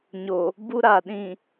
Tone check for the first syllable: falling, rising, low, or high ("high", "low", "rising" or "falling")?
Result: low